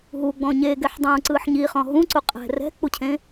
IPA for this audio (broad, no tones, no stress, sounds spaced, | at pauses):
ɦ u ɡ͡b ɔ̃ ɲ e ɡ ɛ ħ dˤ ũː ǀ ɯː ħ ɲ i χ ɔ̃ ɦ ũ ǀ u qʼ ɛ̤ r ɛ̤ k͡p u cʰ ẽ